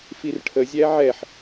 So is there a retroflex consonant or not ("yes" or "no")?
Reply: yes